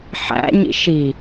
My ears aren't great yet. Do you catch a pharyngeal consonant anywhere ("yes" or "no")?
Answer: yes